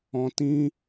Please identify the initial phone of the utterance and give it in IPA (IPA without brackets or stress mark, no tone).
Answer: ɔ̃